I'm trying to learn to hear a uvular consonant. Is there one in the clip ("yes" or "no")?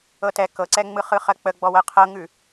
yes